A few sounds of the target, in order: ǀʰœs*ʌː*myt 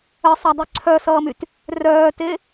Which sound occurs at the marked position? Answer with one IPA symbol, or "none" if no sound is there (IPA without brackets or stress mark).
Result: ʌː